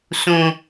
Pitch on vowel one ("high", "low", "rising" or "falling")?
low